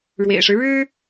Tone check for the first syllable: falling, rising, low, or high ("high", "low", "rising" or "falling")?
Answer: low